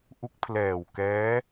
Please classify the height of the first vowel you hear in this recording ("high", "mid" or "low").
high